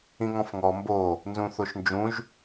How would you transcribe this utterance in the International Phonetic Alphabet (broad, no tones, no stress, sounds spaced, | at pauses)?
ĩ ŋ ɔ̃ f ŋ ɔ m b o | n z ũ θ o ʃ n d͡ʒ ũ ʒ